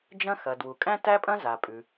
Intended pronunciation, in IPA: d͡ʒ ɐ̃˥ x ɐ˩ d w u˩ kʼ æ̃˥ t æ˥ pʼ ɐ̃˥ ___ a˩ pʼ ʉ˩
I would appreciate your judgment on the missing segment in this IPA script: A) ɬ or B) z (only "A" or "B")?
B